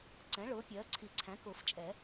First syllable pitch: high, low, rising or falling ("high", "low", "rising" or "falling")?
rising